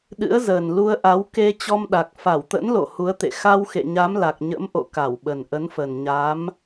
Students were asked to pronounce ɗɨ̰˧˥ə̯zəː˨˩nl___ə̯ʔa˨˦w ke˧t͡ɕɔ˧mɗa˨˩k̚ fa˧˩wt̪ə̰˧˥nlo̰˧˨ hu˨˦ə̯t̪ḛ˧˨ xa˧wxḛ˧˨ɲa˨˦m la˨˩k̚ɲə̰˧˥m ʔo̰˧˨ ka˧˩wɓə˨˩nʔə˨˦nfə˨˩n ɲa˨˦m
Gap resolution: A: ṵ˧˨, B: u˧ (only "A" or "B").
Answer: B